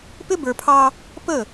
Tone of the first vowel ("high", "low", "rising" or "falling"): high